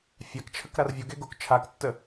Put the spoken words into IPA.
fʲakt͡ʃʰək ɾarvʲoɡe ɡok t͡ʃʰaktːə

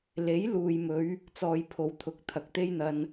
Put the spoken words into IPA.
le˨˥jluː˨jmɵ˨˧ɥ | t͡sɔː˧jpʰo˨˧wt̪ʰʊ˨˥k̚ t̪ʰɐ˨k̚t̪e˥jn̪ɐ˧n

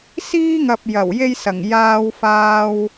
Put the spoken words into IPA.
siː˥ŋɐ˨p̚ jɐ˨˩wje˥jsɐ˨˩ŋ jaː˧wfaː˧w

